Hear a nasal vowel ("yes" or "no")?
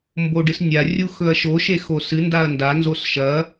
no